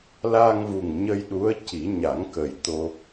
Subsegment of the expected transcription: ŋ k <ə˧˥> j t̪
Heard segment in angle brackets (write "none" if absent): ə˨˩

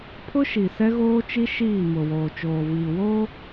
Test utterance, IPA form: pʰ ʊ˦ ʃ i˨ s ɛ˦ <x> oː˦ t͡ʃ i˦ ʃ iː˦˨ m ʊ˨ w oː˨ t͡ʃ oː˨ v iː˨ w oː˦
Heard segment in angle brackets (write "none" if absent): ɣ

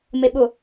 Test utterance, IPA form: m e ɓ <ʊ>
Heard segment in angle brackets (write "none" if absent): ʊ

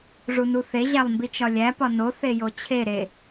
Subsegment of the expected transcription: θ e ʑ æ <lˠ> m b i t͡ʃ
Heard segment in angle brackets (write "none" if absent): lˠ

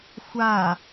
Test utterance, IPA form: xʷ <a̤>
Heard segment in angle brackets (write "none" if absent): a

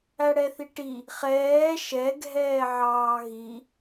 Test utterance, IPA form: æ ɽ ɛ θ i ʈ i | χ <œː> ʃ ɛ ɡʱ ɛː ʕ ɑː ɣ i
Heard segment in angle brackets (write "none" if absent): ɛː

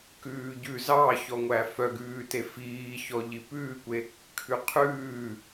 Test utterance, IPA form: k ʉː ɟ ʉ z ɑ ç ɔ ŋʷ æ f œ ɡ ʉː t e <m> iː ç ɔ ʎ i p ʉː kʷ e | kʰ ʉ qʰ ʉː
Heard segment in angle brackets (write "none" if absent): f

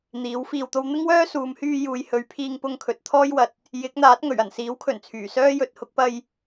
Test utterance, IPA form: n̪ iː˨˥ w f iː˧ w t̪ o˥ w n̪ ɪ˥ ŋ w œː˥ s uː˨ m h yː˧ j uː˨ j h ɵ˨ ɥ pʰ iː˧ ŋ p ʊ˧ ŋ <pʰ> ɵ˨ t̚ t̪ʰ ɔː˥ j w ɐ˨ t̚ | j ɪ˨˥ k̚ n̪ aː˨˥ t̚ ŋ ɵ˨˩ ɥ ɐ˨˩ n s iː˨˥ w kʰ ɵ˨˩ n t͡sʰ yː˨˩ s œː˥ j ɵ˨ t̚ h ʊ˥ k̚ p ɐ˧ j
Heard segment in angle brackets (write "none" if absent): kʰ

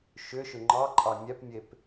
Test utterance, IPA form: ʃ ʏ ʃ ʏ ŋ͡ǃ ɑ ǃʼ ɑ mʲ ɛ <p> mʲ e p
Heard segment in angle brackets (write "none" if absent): p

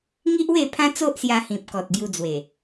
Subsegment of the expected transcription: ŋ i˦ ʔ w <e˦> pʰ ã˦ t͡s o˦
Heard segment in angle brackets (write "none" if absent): e˥˧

